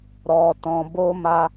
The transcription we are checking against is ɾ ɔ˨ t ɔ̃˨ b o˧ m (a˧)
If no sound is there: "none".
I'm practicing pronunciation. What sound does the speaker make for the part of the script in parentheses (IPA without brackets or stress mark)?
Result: a˧